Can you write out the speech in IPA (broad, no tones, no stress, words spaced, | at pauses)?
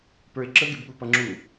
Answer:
pə˞ɪ̯ǁə ɡɪbɠupʌŋ͡ǁu